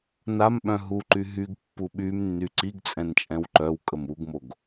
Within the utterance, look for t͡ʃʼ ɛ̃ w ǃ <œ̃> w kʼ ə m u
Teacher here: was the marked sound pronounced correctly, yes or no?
no